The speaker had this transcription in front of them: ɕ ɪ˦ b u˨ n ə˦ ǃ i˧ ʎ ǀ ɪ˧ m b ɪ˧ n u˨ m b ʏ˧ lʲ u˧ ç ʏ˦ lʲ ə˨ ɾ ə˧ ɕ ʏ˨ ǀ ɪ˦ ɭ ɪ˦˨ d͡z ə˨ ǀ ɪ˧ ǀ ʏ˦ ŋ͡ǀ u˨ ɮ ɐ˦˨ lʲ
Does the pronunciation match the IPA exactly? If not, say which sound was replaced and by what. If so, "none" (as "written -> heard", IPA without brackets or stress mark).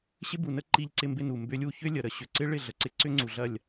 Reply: d͡z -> ɮ